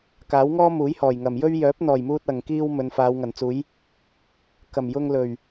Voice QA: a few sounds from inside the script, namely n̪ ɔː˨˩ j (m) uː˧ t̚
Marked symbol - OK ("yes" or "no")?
yes